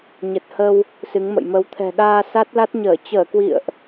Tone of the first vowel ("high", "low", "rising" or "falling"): low